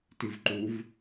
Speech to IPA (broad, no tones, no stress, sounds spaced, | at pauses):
t i v ǃ u v